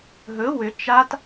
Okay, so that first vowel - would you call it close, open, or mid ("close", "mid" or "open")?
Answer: mid